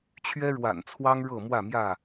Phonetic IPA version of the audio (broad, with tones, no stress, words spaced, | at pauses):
t͡ɕʰɥɛ˦ɻwa̰˨˩nt͡sʰwɑ˦ŋ ɻɤ˥˨ mwä˥˨mjä˥˨